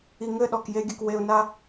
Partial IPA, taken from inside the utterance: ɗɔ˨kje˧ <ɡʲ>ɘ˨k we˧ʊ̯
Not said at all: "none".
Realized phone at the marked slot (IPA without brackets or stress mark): ɡʲ